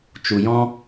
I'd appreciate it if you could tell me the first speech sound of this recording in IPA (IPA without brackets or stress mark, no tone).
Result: t͡ʃ